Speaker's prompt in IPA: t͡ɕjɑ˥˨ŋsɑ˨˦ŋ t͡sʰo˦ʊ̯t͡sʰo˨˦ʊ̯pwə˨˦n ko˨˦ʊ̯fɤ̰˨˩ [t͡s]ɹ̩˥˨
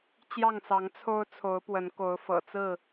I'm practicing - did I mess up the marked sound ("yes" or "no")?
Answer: no